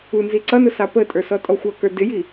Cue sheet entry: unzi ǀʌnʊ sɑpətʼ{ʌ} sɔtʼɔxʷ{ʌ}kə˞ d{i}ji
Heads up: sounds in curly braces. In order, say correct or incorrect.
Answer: incorrect: ə˞, correct, incorrect: ɪ

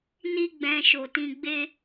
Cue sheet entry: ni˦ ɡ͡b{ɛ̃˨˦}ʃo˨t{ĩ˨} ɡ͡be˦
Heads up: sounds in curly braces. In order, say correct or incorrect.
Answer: incorrect: ɛ̃˧, incorrect: ĩ˧

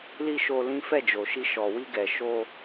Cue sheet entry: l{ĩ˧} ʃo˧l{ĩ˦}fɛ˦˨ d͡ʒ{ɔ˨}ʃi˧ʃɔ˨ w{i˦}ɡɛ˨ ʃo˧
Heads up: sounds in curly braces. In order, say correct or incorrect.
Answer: incorrect: i˧, correct, incorrect: o˨, incorrect: i˧

